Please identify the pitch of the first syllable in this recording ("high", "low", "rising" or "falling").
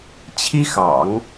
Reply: high